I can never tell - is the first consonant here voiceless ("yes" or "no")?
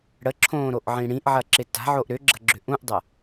no